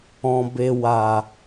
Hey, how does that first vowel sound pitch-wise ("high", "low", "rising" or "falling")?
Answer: low